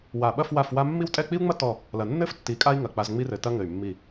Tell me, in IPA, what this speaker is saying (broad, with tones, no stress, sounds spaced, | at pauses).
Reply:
w a˧˩ ɓ ɐ˥˧ f w a˥˧ f w a˥ mː i˥˧ w tʼ ɛ˥˧ k͡p i˥ u̯ ŋ͡m ɐ˥ t ɔ˥˧ | l ɐ˧ nː ɘ˥ f tː i˧ kʼ a˥ i̯ ŋ ɐ˧˩ k͡p a˧ z ŋ͡m i˥ r ɘ˧ t ɐ˥ ŋ ɘ˧˩ y̯ mː i˧˩